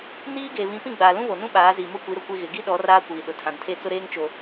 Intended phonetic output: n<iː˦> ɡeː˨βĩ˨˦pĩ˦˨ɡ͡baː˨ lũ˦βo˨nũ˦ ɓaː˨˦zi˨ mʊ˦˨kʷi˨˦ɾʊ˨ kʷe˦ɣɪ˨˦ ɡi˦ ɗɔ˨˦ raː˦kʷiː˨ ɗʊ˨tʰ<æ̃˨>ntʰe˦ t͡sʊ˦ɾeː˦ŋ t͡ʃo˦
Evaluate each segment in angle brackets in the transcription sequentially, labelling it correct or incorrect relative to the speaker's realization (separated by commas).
correct, incorrect